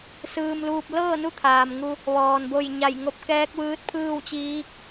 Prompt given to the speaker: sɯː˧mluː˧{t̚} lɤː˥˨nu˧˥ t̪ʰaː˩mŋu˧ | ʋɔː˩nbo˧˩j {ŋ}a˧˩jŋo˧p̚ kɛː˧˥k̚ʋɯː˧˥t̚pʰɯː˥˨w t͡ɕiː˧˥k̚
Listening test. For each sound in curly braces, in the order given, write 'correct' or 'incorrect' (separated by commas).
incorrect, incorrect